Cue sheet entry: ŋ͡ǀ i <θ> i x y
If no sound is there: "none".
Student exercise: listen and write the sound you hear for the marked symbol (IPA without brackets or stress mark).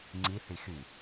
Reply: θ